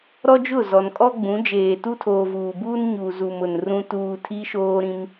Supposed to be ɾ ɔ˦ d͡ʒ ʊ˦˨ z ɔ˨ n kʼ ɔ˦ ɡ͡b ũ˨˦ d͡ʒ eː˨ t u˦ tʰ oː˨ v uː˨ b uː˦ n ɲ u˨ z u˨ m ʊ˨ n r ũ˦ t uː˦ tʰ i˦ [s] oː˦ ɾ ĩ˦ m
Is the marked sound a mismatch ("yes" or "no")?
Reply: yes